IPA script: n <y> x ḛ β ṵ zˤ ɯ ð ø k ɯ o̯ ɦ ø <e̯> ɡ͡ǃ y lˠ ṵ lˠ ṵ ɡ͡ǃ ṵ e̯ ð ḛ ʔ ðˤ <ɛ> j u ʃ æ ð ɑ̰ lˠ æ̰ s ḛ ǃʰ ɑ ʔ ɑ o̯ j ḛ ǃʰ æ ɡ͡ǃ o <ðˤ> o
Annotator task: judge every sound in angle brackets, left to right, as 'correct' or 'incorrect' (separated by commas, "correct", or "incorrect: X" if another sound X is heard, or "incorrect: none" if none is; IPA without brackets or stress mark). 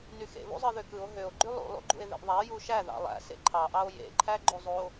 correct, incorrect: o̯, incorrect: æ, incorrect: zˤ